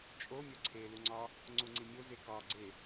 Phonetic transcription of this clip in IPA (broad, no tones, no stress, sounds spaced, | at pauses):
t͡ʃʼ o mʲ ɒ ǀʰ e l u ŋ͡ǀ ɒ | ŋ͡ǀ u ŋ͡ǀ i mʲ o z e k ɒ ɡ͡ǀ e